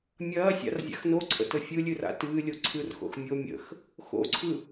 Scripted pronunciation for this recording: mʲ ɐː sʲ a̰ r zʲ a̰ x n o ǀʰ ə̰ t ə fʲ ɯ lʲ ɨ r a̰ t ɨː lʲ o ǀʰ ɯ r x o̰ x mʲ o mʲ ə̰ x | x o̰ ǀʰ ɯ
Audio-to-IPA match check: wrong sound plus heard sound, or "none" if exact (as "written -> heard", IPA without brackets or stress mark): none